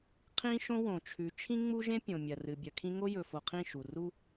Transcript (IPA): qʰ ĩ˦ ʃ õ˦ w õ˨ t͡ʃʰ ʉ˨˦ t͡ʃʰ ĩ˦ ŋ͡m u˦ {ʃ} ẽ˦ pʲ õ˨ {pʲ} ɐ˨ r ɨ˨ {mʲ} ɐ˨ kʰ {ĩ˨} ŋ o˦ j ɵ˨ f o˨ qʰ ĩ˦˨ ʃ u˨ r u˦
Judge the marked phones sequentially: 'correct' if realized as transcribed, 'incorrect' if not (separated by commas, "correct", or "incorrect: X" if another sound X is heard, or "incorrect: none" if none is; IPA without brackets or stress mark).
incorrect: ʒ, incorrect: mʲ, incorrect: bʲ, incorrect: ĩ˦